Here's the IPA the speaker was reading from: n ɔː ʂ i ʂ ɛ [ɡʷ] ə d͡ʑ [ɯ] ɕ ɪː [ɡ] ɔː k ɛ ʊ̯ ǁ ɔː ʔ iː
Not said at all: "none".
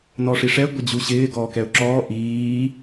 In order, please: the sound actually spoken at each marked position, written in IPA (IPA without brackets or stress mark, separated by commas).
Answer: ɡʷ, u, ɡ